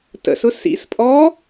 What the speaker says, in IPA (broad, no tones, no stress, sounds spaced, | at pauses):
t ə̰ s ʊ s ḭ s pʼ ɔ